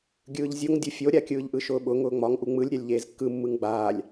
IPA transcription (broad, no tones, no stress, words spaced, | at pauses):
ɡʲɯːʎzʲoŋ dʲufʲoɾʲa kʲɯːʎʔɯʃʊːɓʊ ŋʊːŋ͡mɒŋ ʔuŋ͡mɯlʲ ɾʲalʲʎeːzkːɯ mːɯŋɡ͡baːlʲ